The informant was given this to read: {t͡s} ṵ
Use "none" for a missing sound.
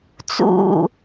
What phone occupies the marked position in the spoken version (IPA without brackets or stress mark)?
t͡s